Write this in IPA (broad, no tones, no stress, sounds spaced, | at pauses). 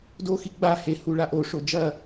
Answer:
d o x i ɡ͡b a h e h u ɭ a ʔ o ʂ o d͡ʒ ɐ